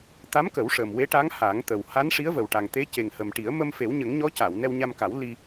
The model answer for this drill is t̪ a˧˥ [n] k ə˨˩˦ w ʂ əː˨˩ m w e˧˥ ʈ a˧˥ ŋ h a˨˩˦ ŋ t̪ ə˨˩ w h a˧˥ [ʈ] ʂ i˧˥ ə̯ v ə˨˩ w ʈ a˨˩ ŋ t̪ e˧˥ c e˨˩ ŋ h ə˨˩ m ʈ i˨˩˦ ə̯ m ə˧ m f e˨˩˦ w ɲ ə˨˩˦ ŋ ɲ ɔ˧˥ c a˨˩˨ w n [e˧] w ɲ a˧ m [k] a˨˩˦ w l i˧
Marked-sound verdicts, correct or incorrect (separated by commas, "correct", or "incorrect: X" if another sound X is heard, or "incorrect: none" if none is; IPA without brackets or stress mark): incorrect: m, incorrect: n, incorrect: ɛ˧, correct